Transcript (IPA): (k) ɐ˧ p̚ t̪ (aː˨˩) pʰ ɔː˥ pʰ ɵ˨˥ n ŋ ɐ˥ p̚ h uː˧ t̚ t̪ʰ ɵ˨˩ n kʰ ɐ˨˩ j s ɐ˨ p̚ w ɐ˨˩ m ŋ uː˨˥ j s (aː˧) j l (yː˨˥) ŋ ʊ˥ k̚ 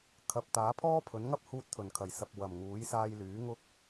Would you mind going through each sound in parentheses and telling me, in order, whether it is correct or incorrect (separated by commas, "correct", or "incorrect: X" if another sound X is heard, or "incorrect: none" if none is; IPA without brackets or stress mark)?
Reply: incorrect: kʰ, incorrect: aː˨˥, correct, correct